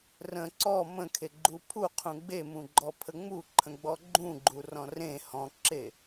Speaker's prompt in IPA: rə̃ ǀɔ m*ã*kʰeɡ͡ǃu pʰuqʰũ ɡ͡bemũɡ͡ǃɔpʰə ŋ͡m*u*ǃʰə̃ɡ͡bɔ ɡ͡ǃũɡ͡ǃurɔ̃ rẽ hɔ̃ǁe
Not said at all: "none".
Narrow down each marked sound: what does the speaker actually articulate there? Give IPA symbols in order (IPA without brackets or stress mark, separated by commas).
ə̃, u